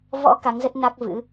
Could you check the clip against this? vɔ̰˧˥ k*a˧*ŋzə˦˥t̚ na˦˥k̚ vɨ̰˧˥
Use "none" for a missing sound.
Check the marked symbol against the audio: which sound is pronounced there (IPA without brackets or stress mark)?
a˨˦